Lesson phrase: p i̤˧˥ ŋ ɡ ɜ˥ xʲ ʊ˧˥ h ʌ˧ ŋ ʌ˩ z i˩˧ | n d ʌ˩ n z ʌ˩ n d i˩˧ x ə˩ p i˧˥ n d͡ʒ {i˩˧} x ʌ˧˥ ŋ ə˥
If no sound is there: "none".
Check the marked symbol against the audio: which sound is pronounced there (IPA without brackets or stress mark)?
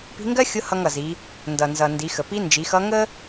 i˩˧